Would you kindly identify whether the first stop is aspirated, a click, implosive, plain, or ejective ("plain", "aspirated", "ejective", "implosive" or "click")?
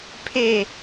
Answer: aspirated